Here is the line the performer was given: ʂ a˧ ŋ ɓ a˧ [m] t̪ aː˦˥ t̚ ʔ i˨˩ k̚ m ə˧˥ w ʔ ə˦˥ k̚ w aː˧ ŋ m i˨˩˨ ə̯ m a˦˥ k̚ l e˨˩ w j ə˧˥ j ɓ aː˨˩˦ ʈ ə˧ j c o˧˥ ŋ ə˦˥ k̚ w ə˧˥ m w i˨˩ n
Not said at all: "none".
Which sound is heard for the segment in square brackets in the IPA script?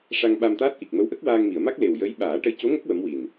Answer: m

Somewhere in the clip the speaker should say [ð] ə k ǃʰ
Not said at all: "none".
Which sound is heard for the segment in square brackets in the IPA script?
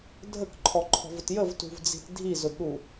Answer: dʱ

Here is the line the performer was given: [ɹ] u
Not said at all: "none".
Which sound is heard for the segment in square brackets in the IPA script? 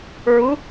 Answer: ɹ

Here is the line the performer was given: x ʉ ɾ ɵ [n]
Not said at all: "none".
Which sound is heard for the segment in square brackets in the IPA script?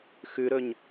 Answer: ɲ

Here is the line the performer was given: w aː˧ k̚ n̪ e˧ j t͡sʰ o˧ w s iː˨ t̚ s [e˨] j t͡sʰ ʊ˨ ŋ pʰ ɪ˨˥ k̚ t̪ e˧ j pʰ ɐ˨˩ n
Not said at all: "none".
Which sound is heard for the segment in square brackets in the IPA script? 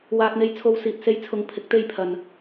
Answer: e˧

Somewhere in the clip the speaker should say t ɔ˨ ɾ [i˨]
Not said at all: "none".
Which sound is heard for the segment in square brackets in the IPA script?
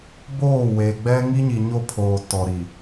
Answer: i˨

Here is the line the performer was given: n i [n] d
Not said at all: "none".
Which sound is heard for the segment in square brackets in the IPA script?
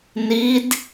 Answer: none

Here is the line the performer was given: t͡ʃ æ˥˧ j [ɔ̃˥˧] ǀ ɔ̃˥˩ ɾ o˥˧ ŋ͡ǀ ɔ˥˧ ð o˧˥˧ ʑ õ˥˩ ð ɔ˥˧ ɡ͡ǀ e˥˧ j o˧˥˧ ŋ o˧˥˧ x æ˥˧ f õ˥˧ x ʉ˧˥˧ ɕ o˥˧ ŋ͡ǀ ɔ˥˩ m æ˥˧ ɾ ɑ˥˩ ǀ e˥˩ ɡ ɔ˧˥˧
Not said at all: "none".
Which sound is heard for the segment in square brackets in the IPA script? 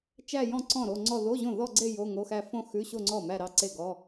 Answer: ɔ̃˥˧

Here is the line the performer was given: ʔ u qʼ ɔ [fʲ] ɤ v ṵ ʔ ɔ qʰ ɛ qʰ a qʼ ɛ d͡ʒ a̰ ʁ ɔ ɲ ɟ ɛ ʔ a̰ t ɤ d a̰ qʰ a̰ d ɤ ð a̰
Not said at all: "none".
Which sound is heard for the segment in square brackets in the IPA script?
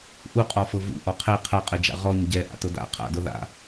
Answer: f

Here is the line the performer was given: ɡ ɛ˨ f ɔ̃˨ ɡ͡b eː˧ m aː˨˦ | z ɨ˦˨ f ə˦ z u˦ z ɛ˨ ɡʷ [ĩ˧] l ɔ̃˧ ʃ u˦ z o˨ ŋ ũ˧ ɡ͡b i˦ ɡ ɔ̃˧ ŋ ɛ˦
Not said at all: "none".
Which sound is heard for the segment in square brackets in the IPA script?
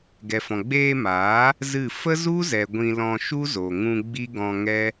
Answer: ĩ˧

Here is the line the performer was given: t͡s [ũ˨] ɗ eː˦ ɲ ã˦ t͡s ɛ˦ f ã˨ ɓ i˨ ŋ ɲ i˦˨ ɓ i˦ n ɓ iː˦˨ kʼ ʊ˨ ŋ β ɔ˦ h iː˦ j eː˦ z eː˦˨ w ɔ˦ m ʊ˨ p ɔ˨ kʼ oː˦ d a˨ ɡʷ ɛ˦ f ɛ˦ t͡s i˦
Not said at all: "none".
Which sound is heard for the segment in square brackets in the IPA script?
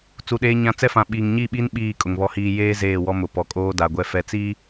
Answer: u˨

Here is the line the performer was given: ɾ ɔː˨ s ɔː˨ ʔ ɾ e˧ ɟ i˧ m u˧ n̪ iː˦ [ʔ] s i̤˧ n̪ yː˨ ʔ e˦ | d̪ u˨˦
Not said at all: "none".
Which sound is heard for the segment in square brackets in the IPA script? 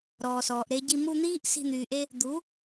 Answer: ʔ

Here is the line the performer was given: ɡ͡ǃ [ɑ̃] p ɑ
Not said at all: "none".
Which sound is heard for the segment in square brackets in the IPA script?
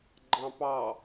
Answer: ɑ̃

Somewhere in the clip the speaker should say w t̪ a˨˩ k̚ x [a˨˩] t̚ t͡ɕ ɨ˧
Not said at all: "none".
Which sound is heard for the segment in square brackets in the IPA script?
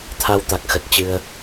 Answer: ə˨˩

